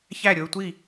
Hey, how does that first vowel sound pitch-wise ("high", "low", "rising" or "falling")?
falling